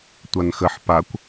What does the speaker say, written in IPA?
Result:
tʷ a n x ə ħ p a kʷ

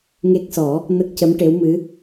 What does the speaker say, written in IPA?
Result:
ŋ e˦˥ k̚ s ɔ˨˩˦ | n ə˦˥ k̚ c ə˧˥ m ʈ e˧˥ w m ɨ˧˥

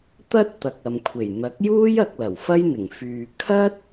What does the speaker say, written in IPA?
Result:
t̪ ɐ˥ t̚ t̪ ɐ˨ k̚ ɐ˨ m kʷʰ e˨˩ j n̪ ɐ˨˥ k̚ j uː˥ j ɐ˧ k̚ l ɐ˨˩ w f ɐ˥ j n̪ ɪ˨˩ ŋ f yː˨ kʰ ɐ˥ t̚

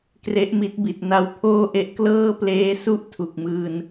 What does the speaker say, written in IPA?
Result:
k r e˦˥ ʔ m i˦˥ t̚ b i˨˩ t̚ n a˧ w pʰ oː˥˩ ʔ e˦˥ ʔ k l ɤː˥˩ p l eː˦˥ s u˥˩ ʔ tʰ u˨˩ k̚ m ɯː˧ n

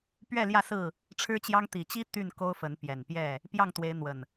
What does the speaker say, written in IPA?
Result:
p ɥ ɛ˥˨ l j ä˥˨ s ɹ̩˥˨ | ʈ͡ʂʰ ɻ̩˦ t͡ɕ j ɑ˦ ŋ t̪ i˨˩ t͡ɕ i˦ t̪ y˥˨ n k o˦ ʊ̯ f ə˨˦ n p j ɛ˨˩ n p j ɛ˥˨ | p j ɑ˥˨ ŋ t̪ w e˨˦ ɪ̯ n̪ w ə˨˩ n

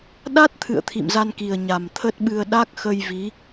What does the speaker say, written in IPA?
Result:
ɗ a˦˥ t̚ t̪ʰ ɨ̰˧˨ ə̯ t̪ʰ ḭ˧˨ m z a˧ n k i˨˩ ə̯ ɲ a˨˩ m t̪ʰ ə˦˥ t̚ ɓ ɨ˧ ə̯ ɗ a˦˥ k̚ x ə˧ j v i˨˦

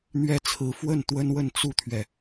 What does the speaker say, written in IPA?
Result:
n̪ ɥ ɛ˥ t͡sʰ ɹ̩˧˥ f w ə˥˩ n t̪ w ə˥ n w ə˥˧ n t͡s u˥˩ t̪ʰ ɥ ɛ˩

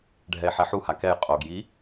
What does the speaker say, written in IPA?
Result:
ɖʱ ɛ e̯ ħ ɛ ħ u h a k ɛ j qʼ o ɡ j i

